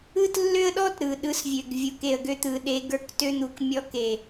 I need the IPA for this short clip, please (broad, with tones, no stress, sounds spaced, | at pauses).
ɯ˦ t lː ø˦ ə̯ ɗ ɔ˦ t ɾ ɯ˨ ɗ ɯ˧ s vʲ ø˨ ɡ vʲ u˨ k e˨ ə̯ ɡ ø˧ t̪ ɯ˨ ɗ e˧ ɡ ə˞˧ k t ø˧ n̪ u˨ k mʲ ɔ˧ k e˨